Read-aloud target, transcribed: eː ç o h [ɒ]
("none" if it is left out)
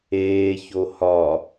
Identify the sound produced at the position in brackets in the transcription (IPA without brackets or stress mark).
ɒ